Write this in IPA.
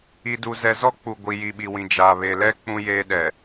i˨ d u˨ z ɛ˨ z ɔ˦ k͡p u˨ ɡʷ i˨ j i˨ ɓ i˨ w ĩ˨ d͡ʒ aː˨ β e˨ l ɛ˦ k͡p ũ˦ j eː˦ ɗ ɛ˨

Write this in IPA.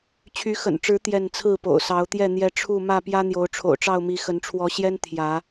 t͡ɕʰ y˨˦ x ə̰˨˩ n ʈ͡ʂ ɻ̩˨˦ t̪ j ɛ˥˨ n t͡sʰ ɹ̩˥˨ p o̰˨˩ ʊ̯ s ɑ˨˦ ʊ̯ t̪ j ɛ˥˨ n̪ j ɛ˦ ʈ͡ʂʰ u˥˨ m ä˥˨ p j ä˦ n̪ j o˨˦ ʊ̯ ʈ͡ʂʰ o̰˨˩ ʊ̯ ʈ͡ʂ ɑ˥˨ ʊ̯ m i˨˦ x ə˨˦ n ʈ͡ʂʰ w ɔ˨˦ ɕ j ɛ˦ n t̪ʰ j ä˨˦

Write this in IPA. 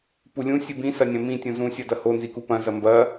p u lʲ ũ sʲ ɨ b ĩ s ɐ nʲ ɐ̃ m ĩ tʲ ũ z ũ sʲ ɐ d ɐ h o n z i k u p ɐ̃ z ɐ m b ɐ

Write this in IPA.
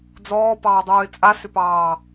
d͡z ɔː p ɑː dˤ uː ɪ̯ t͡sʼ a s ʏ p ɑː

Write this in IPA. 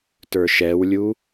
t ə˞ ʃ ɛ w lʲ u

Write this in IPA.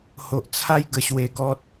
h o˨ ʔ t͡sʰ a˦ j ɡ ə˧ ɕ w e˧ ɡ ɔ˦ t̚

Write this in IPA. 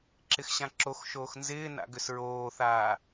ǁ ɪ x ɕ ã ǁ o x ʃ oː x n z ɪː n a̰ ɡ ʏ s ɹ oː θ aː

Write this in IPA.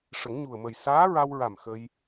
ʂ ə˨˩˦ ŋ ɲ u˨˩ ə̯ m ə˨˩ j s aː˧˥ ɹ a˧ w ɹ a˨˩ m x ə˧ j

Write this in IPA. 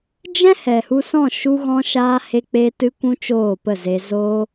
d͡ʒ ɛ̃˦ h ɛ˨ h u˧ s ɔ̃˦˨ ʃ u˧ ɣ ɔ̃˧ ʃ aː˧ h e˧ k͡p e˧ t ɨ˧ kʷ ũ˦ t͡ʃ oː˦˨ p ə˦˨ z e˧ z o˦

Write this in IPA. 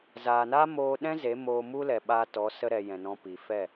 z aː˨ n a˦ m oː˧ ɗ ɛ̃˦ z e˨˦ m oː˧ m u˦ l ɛ˨ ɓ a˧ t ɔ˨˦ s ə˧ ɾ ɛ˨ j ɛ̃˨ n ɔ̃˧ p i˨ f ɛ˦˨

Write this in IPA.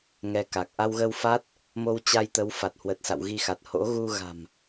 ŋ ɛ˧ k a˨˩ k̚ ʔ a˧ w ɣ ə˧ w f a˦˥ t̚ | m o˧ w t͡ɕ a˧ j t̪ ə˨˦ w f a˨˩ t̚ h w ə˨˩ t̚ s a̰˧˨ w ɣ i˧ x a˨˩ t̚ h o̰˧˥ ɣ u˧ ɣ a̤˨˩ m

